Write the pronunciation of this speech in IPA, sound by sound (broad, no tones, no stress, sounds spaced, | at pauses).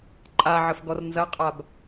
ǃʼ a ʕ ə f ɡ ɔ r n z ɐ qʼ a b